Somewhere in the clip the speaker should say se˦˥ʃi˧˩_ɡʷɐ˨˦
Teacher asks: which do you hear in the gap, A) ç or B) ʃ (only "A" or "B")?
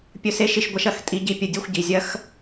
B